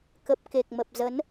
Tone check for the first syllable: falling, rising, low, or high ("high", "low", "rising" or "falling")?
low